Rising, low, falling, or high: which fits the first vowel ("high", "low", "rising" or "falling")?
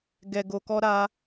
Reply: low